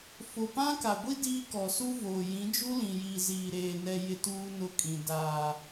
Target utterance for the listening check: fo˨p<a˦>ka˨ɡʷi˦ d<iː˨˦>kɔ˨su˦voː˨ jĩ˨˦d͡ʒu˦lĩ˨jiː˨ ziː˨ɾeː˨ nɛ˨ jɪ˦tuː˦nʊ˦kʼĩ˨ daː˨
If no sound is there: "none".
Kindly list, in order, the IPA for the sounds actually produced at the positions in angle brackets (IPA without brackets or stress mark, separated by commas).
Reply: ã˦, iː˦